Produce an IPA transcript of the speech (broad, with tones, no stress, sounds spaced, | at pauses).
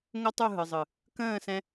ŋ o˦ tˤ u˦˨ ɦ ɯ˨ zˤ ɯ˨ | k ə̃ː˦˨ s ɛ̃˧